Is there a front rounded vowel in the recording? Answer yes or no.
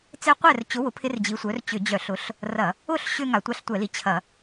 yes